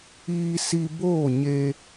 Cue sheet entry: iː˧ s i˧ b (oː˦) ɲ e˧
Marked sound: incorrect: oː˦˨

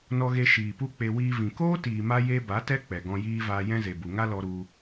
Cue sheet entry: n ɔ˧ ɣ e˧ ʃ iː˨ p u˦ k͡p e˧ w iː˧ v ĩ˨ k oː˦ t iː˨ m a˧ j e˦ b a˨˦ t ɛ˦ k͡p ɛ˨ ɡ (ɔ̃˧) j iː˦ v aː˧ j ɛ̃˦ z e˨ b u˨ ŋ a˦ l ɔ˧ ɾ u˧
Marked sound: correct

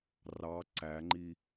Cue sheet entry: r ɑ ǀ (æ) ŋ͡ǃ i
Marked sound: correct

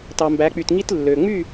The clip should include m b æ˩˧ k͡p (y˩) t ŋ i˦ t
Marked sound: correct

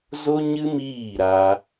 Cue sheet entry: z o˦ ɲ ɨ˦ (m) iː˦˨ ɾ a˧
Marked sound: correct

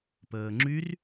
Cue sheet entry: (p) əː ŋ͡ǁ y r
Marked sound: correct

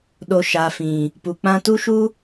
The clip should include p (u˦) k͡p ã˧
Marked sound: incorrect: u˨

